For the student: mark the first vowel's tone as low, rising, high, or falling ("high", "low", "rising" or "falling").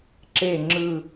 falling